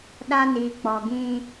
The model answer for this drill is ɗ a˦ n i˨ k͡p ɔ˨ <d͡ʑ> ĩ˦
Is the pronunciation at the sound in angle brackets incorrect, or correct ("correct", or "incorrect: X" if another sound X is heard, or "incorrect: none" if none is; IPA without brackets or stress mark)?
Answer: incorrect: ɡ